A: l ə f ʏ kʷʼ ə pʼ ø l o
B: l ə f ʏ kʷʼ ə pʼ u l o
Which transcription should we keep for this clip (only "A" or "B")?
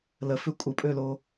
A